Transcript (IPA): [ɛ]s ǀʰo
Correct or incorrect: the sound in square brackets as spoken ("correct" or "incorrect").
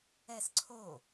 correct